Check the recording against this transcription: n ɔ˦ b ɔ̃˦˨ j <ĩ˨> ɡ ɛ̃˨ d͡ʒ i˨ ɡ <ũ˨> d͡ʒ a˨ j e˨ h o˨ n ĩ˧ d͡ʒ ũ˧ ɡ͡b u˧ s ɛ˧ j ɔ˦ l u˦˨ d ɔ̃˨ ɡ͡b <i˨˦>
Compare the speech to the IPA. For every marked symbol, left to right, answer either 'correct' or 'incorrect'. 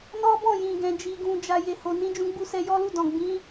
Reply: correct, correct, incorrect

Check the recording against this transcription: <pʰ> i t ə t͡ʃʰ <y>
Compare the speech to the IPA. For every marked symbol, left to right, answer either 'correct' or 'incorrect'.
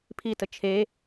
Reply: correct, incorrect

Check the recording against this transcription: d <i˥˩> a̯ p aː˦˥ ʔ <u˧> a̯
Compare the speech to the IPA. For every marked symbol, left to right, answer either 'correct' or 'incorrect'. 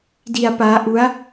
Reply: incorrect, incorrect

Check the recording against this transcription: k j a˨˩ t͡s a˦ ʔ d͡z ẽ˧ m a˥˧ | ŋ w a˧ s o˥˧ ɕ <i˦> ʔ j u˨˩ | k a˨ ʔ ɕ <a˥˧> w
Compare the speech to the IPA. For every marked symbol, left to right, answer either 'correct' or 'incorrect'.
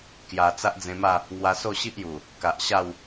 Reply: correct, correct

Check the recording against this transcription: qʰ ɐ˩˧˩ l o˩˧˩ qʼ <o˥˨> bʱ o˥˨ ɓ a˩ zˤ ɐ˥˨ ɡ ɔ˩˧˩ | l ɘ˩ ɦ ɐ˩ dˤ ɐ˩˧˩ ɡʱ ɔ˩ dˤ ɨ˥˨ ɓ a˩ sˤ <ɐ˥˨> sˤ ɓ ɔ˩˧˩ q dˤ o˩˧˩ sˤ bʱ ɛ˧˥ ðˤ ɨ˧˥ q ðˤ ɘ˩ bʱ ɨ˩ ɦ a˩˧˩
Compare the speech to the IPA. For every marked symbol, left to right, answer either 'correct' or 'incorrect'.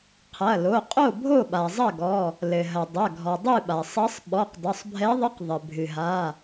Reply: correct, incorrect

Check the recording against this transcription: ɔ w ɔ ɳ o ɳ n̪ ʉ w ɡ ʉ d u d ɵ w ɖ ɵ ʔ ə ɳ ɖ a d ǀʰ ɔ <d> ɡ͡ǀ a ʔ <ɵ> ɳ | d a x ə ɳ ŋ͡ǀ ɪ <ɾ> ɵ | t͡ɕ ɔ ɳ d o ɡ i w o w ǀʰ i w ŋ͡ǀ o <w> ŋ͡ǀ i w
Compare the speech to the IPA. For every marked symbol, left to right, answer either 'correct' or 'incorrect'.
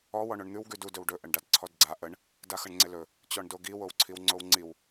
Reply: correct, incorrect, incorrect, correct

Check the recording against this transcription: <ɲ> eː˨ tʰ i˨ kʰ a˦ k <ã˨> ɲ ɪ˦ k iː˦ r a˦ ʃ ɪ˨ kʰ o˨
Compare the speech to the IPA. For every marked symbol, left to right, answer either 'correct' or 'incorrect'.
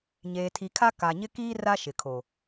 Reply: correct, incorrect

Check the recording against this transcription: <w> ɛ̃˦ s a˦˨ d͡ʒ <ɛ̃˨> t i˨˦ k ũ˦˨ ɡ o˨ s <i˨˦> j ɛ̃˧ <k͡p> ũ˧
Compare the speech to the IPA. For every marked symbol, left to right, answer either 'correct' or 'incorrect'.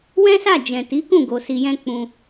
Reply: correct, correct, incorrect, correct

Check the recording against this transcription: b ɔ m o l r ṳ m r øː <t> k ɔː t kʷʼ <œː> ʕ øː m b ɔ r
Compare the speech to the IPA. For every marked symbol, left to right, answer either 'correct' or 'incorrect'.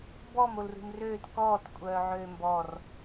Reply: correct, correct

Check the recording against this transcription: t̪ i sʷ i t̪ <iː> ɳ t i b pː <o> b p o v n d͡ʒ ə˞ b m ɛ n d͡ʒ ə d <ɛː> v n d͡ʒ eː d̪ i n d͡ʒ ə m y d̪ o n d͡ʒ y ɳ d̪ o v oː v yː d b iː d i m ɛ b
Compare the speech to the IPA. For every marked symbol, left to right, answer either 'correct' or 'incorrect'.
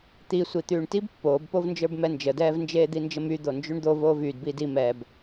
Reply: incorrect, incorrect, correct

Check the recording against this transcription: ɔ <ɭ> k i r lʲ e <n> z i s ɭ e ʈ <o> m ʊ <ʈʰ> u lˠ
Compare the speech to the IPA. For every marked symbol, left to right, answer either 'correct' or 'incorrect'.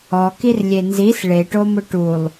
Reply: incorrect, correct, correct, incorrect

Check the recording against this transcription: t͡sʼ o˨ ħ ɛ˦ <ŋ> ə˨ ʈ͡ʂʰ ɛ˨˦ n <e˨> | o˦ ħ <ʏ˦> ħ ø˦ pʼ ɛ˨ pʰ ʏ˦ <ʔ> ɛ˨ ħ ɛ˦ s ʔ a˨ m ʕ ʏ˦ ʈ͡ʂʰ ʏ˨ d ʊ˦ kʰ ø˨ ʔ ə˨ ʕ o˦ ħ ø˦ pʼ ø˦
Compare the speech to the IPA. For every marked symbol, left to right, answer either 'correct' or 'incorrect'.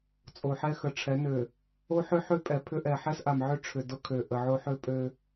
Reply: incorrect, incorrect, correct, correct

